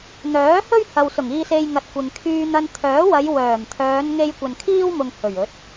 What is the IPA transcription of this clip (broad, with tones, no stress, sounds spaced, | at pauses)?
n̪ œː˨˥ h ɵ˥ ɥ h ɐ˨ w s ʊ˨˩ ŋ iː˧ s e˧ j ŋ ɐ˨ t̚ kʷ ɪ˨ ŋ kʰ yː˧ n̪ ɐ˧ n t̪ʰ œː˨˥ w ɐ˨˧ j w œː˨˩ m t̪ʰ œː˨˧ n ŋ e˧ j kʷ ɐ˨ n kʰ iː˥ w m ʊ˨ ŋ h ɵ˨˩ ɥ ɵ˨˥ t̚